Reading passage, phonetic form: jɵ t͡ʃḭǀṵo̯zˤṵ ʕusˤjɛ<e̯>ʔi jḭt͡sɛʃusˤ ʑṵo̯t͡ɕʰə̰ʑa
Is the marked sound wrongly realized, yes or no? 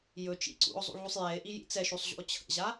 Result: no